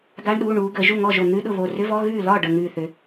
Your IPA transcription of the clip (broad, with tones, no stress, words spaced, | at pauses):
ɡa˧˥˧ɳɗuː˩˧˩ ɳuː˩˧ɡə˩˧ ʒu˥˩ŋɔ˥˩ʒo˧˩ n̪ʉ˧˥˧ɗʊ˥˩ βo˧˩rʏ˧˥˧vɔ˧˥˧ ɣʉː˥˩ lɒ˥˩ ɖə˧˩ŋʉː˧˩θʏ˩˧